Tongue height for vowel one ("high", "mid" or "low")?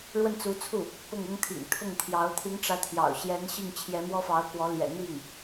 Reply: mid